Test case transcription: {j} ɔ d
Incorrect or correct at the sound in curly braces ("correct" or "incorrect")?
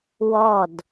incorrect